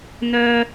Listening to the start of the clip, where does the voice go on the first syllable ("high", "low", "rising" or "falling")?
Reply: high